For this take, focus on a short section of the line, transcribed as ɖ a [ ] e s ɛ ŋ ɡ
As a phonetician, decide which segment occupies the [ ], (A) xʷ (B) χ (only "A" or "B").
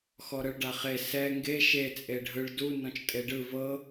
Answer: B